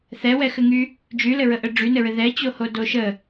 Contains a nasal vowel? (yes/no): no